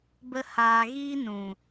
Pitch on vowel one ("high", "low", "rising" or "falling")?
high